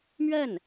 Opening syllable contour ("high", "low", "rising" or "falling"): falling